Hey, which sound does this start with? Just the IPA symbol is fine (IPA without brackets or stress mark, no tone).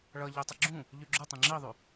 ɭ